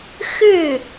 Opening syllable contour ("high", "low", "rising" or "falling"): falling